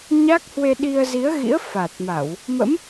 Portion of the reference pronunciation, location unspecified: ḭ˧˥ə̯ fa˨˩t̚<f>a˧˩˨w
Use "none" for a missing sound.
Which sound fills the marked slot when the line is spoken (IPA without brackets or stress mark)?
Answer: m